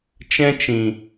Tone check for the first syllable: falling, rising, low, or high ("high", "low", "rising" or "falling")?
high